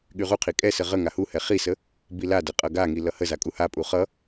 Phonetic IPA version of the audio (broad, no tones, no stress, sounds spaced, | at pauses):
ɠ y ʁ u qʰ i kʼ ɛ s ə ʁ ə ŋ a h u h ɛ χ i s ə | b i l a d ə qʼ ʌ ɡ a ŋ i l ʌ h ə z a kʼ u h a pʼ u χ ʌ